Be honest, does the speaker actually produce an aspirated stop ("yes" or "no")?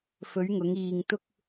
no